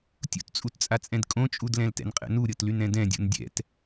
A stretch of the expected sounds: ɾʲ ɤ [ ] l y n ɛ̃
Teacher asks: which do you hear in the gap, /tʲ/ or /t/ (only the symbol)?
t